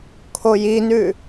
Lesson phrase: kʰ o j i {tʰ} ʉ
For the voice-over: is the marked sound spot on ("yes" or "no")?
no